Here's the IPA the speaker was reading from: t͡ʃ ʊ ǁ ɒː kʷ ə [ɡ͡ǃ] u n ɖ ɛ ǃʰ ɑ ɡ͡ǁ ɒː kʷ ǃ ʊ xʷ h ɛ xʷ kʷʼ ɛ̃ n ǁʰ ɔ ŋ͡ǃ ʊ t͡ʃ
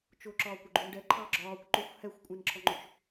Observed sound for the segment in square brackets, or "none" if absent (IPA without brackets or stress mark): ɡ͡ǃ